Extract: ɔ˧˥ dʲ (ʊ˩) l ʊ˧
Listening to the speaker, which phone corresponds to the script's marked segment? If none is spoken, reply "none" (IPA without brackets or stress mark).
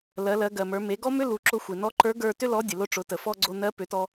ə˩